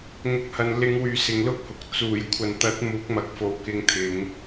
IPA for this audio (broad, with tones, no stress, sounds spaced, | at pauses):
ŋ ʊ˨˥ k̚ h ɐ˨ n l ɪ˨˧ ŋ w yː˨ s ɪ˨ ŋ l ʊ˥ k̚ h ʊ˨ k̚ t͡s uː˨˩ j kʷʰ ɐ˨ n t̪ ɐ˨˥ t̚ m uː˨˥ k̚ m ɐ˨ k̚ f o˨˥ w k ɪ˧ ŋ t̪ʰ ɪ˨˧ ŋ